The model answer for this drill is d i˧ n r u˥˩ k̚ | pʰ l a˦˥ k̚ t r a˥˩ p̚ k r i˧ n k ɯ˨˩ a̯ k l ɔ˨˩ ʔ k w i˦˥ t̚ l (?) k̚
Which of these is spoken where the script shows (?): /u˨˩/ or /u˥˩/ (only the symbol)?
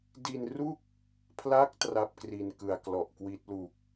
u˨˩